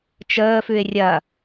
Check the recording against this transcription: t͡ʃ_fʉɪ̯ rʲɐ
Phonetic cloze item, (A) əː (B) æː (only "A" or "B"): A